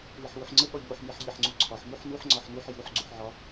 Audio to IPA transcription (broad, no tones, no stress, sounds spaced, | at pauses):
w i ħ w u ħ ŋ͡ǀ ə ɠ ɒ ʎ u ħ m i ħ ʎ i ħ ŋ͡ǀ u ǀʰ ɒ ħ m u ħ n u ħ ŋ͡ǀ ɒ ħ n u ħ j u ħ ɡ͡ǀ u ħ ʕ ɒ